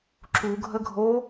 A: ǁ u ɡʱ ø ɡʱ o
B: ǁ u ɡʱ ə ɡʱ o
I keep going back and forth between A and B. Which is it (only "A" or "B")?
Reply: B